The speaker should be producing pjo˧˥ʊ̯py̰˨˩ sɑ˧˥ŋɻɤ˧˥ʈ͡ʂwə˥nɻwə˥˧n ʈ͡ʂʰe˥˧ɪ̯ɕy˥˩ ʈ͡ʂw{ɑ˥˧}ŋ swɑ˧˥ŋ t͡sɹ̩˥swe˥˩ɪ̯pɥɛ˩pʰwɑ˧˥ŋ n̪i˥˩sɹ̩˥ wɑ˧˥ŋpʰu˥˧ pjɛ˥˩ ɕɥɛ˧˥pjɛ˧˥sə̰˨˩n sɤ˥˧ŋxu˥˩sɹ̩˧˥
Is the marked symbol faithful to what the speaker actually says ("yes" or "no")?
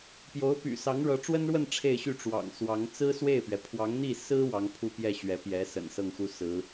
no